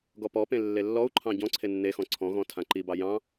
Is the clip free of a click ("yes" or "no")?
no